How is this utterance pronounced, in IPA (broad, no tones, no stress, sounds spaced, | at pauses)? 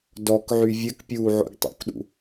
d ɔ k ʕ y vʲ ɘ k pʲ uː ʕ o̰ ɡ tˤ o̰ k ɗ ṵ